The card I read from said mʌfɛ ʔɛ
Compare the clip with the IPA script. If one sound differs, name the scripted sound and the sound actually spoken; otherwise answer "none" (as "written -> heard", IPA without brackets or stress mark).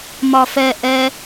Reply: ʌ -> ɒ